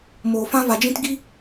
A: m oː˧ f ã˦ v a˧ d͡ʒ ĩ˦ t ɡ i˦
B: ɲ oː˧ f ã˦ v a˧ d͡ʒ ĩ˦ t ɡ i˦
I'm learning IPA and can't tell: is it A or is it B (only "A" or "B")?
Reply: A